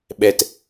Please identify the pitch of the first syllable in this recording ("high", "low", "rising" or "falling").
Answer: low